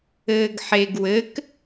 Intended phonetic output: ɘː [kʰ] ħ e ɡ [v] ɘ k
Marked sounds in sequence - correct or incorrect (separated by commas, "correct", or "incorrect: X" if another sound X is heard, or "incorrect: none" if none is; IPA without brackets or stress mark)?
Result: incorrect: ɡ, incorrect: w